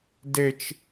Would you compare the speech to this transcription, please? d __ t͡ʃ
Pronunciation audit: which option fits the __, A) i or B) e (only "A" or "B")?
B